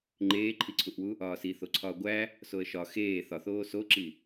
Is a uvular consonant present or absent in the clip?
absent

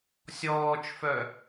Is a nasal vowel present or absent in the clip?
absent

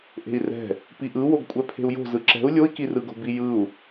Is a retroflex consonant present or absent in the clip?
absent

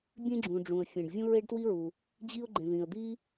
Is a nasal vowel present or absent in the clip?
present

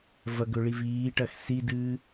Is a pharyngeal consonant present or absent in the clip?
absent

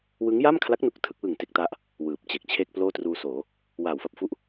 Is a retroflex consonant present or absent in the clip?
absent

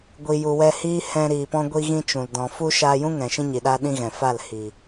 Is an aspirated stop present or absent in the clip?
absent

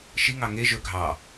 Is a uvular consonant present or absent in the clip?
absent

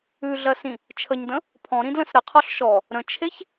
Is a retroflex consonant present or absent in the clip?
absent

